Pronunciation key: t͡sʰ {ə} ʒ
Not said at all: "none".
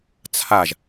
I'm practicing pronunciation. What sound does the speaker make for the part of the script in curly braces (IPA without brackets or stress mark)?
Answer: a